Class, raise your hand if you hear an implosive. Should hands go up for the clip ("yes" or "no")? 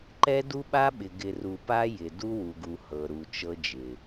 yes